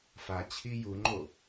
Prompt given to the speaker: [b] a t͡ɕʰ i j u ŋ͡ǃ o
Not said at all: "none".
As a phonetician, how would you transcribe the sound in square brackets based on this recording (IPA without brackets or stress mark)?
f